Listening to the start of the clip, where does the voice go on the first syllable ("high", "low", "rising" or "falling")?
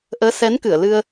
rising